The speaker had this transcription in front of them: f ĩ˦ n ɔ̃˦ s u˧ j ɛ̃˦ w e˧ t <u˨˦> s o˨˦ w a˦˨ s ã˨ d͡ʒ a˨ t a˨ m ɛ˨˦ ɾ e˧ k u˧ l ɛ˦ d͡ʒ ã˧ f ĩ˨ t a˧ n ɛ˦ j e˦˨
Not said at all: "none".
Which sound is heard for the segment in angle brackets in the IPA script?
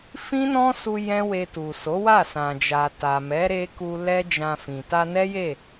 u˨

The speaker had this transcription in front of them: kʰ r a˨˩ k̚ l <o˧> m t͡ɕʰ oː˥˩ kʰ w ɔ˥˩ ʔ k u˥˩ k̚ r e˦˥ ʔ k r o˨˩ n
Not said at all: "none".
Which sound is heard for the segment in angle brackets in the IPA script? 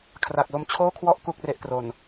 o˧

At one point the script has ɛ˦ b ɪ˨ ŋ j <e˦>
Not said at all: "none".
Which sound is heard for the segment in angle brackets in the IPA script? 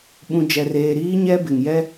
ɛ˦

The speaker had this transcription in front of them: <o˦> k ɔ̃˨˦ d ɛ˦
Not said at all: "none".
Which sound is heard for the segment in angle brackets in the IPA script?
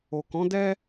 o˨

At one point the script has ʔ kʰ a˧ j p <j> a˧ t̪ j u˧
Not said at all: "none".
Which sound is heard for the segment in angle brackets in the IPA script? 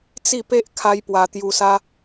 w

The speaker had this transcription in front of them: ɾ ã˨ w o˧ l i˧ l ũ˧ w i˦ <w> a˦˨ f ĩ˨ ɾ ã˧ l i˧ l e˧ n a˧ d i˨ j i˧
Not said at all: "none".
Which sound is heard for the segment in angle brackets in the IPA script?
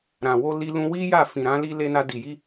j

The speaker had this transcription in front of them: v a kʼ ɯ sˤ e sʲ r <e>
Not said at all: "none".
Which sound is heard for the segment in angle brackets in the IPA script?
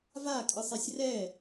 ɛ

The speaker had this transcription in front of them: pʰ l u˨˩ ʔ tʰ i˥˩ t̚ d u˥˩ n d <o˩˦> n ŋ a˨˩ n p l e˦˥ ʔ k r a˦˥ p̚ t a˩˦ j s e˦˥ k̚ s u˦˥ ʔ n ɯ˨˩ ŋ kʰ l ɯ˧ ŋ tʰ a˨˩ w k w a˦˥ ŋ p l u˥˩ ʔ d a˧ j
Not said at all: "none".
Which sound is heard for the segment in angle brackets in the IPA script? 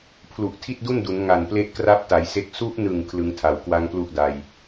u˩˦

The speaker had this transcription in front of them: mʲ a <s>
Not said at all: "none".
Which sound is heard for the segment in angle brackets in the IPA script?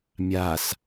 s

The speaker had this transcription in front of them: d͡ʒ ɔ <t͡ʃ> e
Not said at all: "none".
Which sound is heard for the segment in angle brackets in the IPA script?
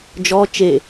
t͡ʃ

